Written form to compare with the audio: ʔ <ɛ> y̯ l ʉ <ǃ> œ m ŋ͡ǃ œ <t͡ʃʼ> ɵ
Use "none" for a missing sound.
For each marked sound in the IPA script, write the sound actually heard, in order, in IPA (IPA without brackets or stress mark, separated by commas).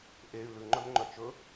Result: e, ŋ͡ǃ, t͡ʃ